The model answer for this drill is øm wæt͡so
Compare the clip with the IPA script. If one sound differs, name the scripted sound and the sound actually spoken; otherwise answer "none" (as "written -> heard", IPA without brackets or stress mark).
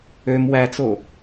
none